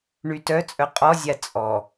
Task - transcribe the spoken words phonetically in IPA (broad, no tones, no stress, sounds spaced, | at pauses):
ɳ y t œ t͡sʼ œ qʼ ɔ zʲ a t͡sʼ ɔ